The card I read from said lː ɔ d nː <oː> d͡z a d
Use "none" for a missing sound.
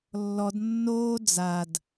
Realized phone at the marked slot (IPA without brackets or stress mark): oː